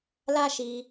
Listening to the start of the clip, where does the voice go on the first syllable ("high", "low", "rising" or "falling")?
high